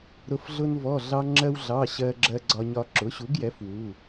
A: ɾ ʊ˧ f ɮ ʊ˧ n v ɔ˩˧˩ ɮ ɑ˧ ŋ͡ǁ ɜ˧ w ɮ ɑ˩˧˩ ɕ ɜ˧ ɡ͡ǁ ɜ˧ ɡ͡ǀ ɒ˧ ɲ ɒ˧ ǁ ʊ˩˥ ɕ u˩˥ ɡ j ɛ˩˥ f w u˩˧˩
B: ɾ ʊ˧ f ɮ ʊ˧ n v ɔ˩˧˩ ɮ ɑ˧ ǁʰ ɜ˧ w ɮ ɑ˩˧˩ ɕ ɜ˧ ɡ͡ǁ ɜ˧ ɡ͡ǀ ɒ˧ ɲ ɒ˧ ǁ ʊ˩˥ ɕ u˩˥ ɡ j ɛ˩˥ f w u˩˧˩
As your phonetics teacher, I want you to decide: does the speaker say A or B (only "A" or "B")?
A